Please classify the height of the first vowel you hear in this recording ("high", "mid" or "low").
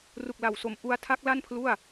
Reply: high